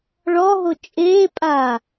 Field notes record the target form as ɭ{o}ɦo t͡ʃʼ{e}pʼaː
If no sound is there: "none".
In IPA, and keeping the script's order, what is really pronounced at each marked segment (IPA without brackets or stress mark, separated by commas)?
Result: ɔ, eː